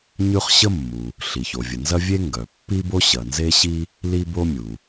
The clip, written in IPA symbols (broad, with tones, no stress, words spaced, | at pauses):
ɲʉ˥χ ɕə˥mːu˩ | ɬi˩ço˩vʲə˩nzɐ˥ vʲe˥ŋɡœ˩pːi˥bo˥ ɕɐ˩nze˥ɕi˥ | li˥bo˥ mʲu˩